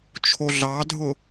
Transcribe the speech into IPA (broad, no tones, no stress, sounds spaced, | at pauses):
t͡ʃʰ o ɮ ɑ dʱ ʊ